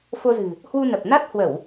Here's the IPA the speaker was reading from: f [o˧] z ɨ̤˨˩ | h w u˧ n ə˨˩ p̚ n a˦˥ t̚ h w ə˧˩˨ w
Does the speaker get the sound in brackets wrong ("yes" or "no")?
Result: no